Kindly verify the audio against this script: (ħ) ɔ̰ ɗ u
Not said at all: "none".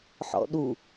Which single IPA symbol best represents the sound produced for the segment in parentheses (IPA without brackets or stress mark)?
ħ